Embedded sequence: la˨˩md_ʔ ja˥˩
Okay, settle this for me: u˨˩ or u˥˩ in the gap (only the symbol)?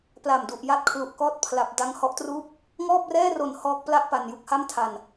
u˨˩